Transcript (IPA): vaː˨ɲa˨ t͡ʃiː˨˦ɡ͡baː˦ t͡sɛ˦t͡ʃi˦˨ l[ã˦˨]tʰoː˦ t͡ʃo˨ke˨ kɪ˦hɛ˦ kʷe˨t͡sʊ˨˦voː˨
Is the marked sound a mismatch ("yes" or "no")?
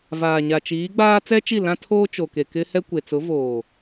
yes